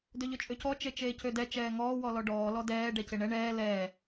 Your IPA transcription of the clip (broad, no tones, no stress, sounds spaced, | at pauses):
d ø ʎ ø t͡ʃʼ ø c ɔ t͡ʃ e t͡ʃ eː c ø d ɛ t͡ʃ ɛː ŋ ɔː w ɔ l ɔ ɖ ɔː l ɔ d ɛː ɖ ɛ c e ɳ ɛ ɳ ɛː l ɛː